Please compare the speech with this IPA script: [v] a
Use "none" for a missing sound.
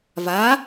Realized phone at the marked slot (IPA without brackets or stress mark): v